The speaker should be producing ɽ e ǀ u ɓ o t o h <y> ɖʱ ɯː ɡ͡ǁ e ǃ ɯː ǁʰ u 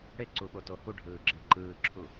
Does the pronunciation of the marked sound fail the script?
yes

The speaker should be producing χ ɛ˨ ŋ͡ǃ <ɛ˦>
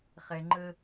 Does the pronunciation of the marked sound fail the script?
yes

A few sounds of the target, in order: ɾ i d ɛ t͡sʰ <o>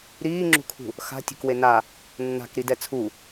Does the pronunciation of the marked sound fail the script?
yes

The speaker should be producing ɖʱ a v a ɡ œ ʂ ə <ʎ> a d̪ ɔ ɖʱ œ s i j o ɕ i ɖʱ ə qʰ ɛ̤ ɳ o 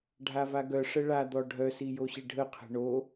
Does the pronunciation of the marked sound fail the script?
yes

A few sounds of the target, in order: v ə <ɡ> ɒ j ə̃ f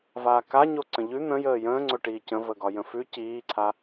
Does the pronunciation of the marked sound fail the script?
no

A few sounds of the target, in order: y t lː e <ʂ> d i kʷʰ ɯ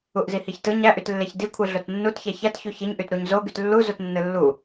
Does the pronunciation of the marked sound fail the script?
yes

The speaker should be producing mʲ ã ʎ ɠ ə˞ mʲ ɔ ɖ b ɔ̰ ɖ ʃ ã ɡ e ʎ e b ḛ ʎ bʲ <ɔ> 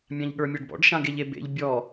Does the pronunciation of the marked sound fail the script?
no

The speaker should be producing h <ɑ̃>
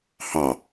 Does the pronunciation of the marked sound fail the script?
yes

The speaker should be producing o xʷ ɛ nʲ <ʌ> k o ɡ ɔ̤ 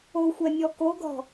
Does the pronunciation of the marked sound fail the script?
yes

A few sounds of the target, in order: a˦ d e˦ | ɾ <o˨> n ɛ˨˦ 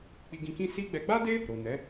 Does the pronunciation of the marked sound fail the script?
no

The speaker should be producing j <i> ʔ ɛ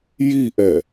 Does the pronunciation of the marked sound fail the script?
no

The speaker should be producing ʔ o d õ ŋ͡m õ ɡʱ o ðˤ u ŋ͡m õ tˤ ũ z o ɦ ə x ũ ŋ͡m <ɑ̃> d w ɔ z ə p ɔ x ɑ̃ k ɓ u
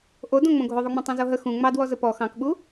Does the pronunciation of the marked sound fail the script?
yes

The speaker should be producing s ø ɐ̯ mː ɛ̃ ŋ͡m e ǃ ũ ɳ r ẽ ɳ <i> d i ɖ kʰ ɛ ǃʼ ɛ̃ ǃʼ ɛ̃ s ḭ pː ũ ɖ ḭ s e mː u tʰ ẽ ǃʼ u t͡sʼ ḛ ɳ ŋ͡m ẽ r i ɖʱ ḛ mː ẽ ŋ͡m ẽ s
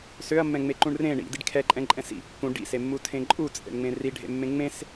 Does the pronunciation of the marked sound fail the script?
yes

